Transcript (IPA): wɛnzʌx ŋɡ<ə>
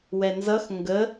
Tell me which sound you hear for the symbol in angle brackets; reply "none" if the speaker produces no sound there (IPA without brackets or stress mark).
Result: ə